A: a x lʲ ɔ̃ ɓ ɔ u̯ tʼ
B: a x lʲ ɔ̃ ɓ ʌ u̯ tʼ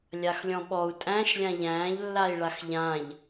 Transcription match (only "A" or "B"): A